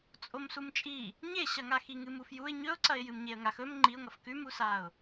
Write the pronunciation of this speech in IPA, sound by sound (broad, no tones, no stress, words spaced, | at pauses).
t͡sʼomsumt͡ʃʼi | ɲeɕɐŋa xiŋɨmufjuɪ̯ ɲɵʊ̯ǀɐɪ̯ jɨmɲeə̯ŋax ɵm ŋ͡ǃiʊ̯ŋɐf kʉmusaʊ̯